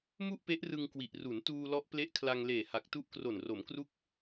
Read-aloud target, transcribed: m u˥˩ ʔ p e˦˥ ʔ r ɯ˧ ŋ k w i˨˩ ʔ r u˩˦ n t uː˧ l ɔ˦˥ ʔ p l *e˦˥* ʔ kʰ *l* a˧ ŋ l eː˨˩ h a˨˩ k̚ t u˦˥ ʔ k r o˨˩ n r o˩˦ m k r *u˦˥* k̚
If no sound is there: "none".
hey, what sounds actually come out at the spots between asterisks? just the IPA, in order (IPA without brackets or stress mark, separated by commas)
e˦˥, l, u˦˥